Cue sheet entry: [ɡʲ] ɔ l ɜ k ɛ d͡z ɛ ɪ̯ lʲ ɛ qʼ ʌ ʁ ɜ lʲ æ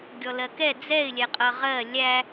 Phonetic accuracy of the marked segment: correct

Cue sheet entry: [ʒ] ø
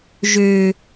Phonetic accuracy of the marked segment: correct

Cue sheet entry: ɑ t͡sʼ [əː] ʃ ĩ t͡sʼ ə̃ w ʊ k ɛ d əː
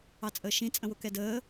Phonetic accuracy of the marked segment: correct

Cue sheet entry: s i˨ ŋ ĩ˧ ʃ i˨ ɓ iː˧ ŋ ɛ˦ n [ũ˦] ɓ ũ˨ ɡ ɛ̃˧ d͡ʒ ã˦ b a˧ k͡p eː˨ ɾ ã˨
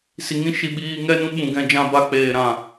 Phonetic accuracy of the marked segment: correct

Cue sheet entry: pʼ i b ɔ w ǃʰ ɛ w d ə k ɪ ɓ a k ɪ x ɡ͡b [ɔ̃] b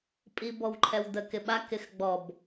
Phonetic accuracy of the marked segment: incorrect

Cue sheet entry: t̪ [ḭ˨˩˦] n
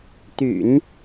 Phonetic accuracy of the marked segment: incorrect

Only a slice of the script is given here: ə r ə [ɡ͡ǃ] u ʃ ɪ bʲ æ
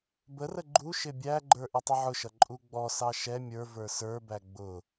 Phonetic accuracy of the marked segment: correct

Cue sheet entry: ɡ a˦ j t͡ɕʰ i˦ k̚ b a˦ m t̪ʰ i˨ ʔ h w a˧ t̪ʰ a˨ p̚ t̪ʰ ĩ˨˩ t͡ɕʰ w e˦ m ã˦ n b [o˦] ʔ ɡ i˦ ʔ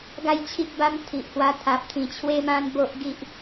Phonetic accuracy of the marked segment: correct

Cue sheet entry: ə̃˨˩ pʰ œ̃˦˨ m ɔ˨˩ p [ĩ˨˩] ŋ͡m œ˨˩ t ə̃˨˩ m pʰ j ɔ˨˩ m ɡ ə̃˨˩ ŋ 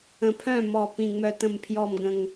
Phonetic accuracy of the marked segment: correct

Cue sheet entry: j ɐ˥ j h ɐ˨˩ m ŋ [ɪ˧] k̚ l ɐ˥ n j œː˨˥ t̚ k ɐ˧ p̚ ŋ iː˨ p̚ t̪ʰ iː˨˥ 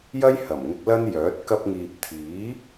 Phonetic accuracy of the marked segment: correct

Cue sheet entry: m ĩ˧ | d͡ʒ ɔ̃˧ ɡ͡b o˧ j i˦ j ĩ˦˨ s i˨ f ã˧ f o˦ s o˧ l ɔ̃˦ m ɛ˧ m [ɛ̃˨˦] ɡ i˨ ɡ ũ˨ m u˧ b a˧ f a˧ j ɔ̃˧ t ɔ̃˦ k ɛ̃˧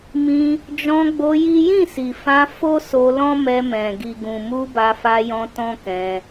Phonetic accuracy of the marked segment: incorrect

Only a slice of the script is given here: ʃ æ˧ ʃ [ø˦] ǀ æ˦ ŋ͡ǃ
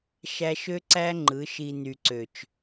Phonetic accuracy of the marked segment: correct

